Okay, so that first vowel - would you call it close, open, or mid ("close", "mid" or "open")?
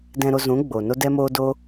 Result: mid